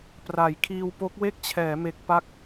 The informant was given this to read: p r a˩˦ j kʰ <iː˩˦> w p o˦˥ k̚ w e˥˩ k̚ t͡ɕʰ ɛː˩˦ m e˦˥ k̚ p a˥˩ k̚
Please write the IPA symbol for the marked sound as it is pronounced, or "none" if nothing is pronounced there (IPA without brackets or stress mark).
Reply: iː˧